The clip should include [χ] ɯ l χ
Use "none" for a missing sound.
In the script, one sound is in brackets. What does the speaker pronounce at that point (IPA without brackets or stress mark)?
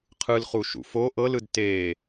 qʰ